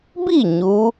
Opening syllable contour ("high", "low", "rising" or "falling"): falling